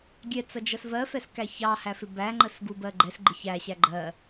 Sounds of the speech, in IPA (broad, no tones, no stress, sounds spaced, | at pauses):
ɡʲ ɛ t͡s ʌ d͡ʒ ʌ s v ɜ f ɛ s k æ ç ɑ h æ f ɪ b æ ŋ͡ǃ ə s ɡ u b ɜ ɡ͡ǃ ɛ s ɡ͡ǃ ɪ ç æ ɕ æ ɡ͡ǃ ɜ